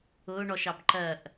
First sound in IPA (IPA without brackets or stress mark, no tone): ʊː